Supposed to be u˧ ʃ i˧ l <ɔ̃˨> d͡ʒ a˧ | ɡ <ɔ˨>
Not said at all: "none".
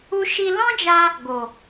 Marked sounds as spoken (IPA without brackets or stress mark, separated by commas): ɔ̃˦, o˨